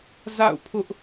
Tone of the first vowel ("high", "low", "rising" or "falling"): falling